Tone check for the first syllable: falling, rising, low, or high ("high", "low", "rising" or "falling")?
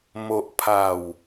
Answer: low